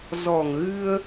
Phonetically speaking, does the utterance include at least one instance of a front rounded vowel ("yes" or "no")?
no